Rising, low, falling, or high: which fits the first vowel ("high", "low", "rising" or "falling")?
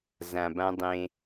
low